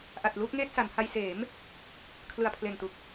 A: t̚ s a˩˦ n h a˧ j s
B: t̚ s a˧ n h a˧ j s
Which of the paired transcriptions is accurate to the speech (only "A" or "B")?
A